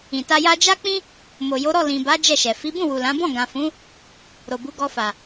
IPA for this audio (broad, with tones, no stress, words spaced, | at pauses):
ĩ˨ta˧ja˦ d͡ʒa˦k͡pĩ˦ | mo˨jo˨˦ɾɔ˦˨ lĩ˨ba˨˦ d͡ʒɛ˦˨ʃɛ˨ fi˨˦bũ˦˨ wu˨lã˨˦bɔ̃˦˨ ɡã˨fũ˨˦ | ɾo˨bu˨˦ ɡɔ˧fa˨